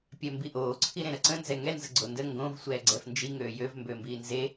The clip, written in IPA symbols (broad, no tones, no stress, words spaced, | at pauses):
pʲɛmbiʔoː ǀʰiɾẽɾəǀə̃ nzɛŋɛ nzəɡ͡ǀondə ŋɡõv sʷɛːɡ͡ǀɛfnd͡ʒi ŋøːjøv mbømbiːnze